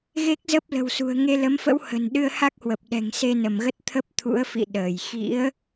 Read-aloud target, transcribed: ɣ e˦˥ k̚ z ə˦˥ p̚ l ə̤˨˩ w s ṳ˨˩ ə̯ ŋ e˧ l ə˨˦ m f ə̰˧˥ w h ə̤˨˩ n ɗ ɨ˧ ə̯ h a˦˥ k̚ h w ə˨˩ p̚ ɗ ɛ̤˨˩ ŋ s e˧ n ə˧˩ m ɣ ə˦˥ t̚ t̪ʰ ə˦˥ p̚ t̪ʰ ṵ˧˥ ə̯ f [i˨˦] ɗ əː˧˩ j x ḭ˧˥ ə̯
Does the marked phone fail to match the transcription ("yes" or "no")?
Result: yes